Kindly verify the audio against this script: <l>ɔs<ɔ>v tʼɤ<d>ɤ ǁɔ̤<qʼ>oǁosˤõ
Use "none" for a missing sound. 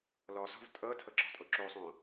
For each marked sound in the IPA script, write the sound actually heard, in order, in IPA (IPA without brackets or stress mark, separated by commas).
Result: l, ɔ̤, tʰ, tʼ